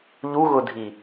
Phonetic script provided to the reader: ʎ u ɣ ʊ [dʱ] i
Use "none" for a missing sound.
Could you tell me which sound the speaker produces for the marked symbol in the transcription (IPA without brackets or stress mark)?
dʱ